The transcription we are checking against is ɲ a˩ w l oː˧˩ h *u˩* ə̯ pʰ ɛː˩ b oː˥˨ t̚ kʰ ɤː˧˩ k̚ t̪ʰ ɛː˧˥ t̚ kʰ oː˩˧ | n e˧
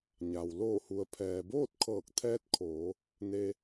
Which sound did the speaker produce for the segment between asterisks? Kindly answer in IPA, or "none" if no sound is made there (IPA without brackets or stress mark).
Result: u˩